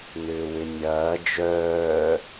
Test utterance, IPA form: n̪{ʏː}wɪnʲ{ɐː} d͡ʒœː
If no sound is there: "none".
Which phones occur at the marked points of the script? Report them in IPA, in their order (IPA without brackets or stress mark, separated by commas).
ʏː, ɐː